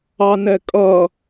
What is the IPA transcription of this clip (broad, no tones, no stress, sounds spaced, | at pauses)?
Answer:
ɑ n ɛ kʼ ʌ